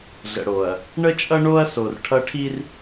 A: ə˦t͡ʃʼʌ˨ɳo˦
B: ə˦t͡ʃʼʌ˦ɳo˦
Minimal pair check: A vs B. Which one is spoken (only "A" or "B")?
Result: B